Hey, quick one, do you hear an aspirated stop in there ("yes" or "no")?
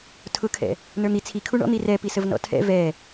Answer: yes